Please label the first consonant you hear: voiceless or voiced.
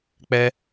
voiceless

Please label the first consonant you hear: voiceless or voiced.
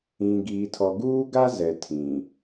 voiced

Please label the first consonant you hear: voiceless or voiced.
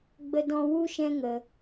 voiced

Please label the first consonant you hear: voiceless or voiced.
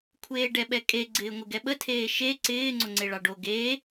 voiceless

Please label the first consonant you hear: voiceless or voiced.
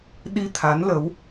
voiced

